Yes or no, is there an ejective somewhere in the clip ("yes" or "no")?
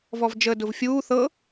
no